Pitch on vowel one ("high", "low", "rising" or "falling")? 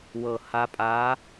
low